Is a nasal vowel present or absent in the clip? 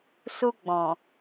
present